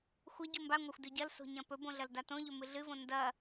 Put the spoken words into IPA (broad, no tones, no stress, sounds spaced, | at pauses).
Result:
xʷ ɐ ɟ u m b a ŋʷ a xʷ d ʉ ɟ ɐ l s o̤ ɲ ɐ̃ p ɵ b õ ɮ ɐ l d a t õ ʎ ɵ m ɨ ɮ ɨ v õ n d ɐ